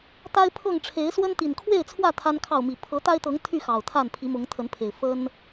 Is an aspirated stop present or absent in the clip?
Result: present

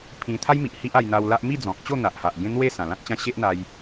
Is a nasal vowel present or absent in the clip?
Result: present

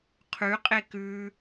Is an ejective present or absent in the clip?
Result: present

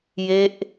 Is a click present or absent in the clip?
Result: absent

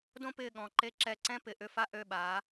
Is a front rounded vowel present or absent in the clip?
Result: present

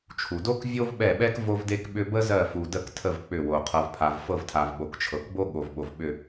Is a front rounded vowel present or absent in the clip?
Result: present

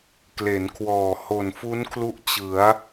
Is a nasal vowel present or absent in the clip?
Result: absent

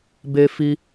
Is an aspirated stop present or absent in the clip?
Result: absent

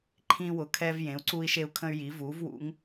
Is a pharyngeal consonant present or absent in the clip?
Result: absent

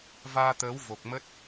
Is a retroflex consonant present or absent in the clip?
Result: absent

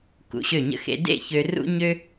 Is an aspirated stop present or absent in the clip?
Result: absent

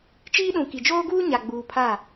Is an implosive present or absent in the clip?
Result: present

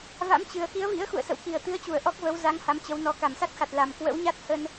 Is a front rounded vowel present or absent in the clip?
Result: absent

